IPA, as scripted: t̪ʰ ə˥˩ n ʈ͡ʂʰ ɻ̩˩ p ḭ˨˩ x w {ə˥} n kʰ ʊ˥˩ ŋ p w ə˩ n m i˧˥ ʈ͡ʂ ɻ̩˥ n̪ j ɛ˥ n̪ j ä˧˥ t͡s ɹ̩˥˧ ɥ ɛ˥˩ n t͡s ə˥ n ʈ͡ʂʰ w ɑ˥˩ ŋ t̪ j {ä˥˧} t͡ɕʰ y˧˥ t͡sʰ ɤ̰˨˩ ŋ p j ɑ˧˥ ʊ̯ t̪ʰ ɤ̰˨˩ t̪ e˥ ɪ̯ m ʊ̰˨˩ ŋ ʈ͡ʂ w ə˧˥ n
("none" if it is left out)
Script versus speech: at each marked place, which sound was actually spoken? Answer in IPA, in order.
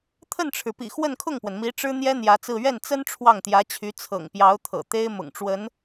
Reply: ə˥˧, ä˧˥

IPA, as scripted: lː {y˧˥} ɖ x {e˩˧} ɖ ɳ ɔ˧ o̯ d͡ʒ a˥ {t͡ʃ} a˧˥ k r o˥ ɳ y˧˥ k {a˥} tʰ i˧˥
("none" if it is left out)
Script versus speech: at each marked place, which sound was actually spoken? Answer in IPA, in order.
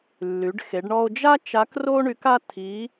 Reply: y˩˧, e˩˧, t͡ʃ, a˥

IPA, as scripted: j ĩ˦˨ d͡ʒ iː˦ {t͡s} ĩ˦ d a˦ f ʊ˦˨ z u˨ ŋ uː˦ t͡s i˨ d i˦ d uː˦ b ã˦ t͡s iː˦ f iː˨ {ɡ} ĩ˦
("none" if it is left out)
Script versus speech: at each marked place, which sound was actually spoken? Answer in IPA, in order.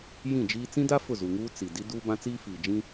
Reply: t͡s, d͡ʒ

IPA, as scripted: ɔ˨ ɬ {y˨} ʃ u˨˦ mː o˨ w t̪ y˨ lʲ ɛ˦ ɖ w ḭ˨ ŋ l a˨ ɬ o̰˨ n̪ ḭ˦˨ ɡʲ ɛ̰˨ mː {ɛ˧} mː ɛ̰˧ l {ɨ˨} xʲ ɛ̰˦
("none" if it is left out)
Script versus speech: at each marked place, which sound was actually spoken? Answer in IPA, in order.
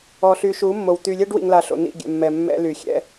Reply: y˨, ɛ˨, y˨

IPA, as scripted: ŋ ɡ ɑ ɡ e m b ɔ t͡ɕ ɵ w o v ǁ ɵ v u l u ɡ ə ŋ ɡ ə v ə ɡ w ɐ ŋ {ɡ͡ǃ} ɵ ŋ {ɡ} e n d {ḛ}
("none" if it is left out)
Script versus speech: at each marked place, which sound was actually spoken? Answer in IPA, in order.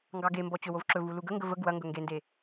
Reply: ɡ, ɡ, e

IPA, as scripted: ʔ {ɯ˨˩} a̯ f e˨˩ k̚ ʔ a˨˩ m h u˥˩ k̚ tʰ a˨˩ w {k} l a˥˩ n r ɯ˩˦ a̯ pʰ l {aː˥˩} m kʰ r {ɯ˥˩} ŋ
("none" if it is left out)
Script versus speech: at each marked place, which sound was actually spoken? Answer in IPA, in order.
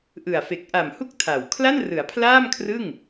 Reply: ɯ˨˩, kʰ, aː˥˩, ɯ˥˩

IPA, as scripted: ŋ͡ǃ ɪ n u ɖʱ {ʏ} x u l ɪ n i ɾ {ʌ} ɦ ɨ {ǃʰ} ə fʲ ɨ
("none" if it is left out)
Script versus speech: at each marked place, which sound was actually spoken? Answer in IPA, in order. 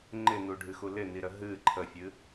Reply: ɨ, ə, ǃʰ

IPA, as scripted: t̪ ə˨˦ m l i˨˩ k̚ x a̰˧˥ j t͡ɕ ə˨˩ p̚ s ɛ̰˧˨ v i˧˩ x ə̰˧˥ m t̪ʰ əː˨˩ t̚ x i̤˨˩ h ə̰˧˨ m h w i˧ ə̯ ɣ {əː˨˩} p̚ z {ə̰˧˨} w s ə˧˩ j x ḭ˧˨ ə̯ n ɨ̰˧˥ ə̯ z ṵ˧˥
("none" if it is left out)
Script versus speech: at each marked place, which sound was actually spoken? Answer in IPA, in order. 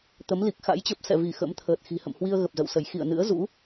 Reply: ə˨˩, ə̰˧˨

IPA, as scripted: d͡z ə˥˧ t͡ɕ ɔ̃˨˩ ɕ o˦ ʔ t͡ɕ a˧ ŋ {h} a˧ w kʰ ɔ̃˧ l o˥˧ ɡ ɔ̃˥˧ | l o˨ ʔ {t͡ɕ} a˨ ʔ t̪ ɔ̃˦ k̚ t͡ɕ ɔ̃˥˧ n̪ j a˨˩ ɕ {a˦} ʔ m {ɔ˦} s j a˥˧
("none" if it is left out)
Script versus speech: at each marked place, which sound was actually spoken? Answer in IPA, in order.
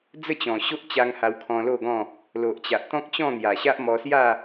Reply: h, t͡ɕ, a˦, ɔ˧

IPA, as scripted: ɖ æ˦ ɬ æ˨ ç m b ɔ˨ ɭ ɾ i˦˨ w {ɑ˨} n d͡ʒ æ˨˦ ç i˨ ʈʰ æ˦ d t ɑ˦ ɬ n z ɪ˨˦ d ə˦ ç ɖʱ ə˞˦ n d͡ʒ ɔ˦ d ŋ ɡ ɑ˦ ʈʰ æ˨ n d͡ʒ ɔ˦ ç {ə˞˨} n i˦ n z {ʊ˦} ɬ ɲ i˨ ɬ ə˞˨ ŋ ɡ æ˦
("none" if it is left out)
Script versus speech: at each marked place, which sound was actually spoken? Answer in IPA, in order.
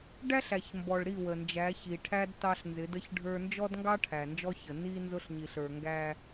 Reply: ə˨, ə˨, ʊ˦

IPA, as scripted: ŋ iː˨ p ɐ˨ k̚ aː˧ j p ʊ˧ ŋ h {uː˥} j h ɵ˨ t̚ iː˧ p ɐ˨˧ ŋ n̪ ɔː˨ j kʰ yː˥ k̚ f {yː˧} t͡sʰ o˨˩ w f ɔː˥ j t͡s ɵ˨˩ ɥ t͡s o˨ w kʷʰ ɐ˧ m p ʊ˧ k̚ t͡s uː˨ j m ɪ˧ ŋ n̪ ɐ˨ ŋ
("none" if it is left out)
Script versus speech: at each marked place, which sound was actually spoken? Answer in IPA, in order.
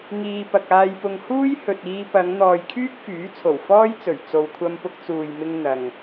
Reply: uː˥, yː˨˥

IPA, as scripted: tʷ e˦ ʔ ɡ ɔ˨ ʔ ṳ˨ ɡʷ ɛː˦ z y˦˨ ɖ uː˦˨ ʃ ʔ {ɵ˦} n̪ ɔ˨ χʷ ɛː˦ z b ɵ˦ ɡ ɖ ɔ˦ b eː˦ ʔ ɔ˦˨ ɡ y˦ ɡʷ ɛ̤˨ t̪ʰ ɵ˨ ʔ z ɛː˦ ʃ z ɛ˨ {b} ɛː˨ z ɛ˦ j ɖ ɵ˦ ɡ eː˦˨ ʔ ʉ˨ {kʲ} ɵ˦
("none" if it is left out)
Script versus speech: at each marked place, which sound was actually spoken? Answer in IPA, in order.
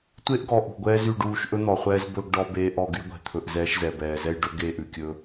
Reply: ɵ˦, b, kʲ

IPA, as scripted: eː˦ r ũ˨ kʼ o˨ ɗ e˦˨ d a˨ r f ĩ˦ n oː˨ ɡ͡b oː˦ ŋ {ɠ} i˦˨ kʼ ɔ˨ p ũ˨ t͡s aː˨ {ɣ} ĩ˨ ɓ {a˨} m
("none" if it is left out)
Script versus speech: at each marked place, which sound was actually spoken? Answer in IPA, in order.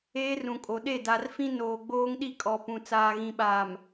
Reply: ɗ, ɣ, aː˨

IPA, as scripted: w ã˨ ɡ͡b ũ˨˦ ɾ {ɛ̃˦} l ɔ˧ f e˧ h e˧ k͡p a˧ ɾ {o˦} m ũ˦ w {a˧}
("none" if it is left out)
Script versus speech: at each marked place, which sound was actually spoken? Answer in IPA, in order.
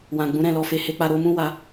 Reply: ɛ̃˦˨, o˧, a˧

